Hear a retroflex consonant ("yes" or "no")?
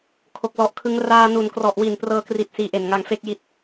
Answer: no